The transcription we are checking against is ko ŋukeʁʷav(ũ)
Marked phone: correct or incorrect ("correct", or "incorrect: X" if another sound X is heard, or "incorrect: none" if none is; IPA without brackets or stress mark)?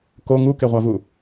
incorrect: u